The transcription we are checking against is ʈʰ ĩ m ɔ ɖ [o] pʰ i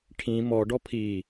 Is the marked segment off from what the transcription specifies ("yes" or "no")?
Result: yes